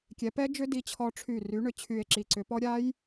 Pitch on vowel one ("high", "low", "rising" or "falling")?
rising